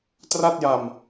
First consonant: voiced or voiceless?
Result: voiceless